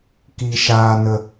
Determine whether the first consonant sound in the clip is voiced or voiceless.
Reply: voiceless